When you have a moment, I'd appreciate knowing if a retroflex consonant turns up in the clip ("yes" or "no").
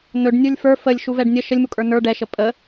yes